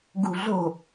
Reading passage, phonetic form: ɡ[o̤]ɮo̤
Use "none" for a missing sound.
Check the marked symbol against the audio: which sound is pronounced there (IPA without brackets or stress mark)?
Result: ṳ